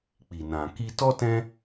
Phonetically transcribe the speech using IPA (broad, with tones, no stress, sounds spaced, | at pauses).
k͡p i˨ n ã˨ k i˧ t ɔ˦ t ɛ̃˦